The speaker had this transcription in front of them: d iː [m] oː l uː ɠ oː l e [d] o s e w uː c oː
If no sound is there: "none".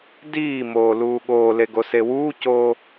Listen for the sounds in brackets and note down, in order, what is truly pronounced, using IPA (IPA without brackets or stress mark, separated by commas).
m, ɡ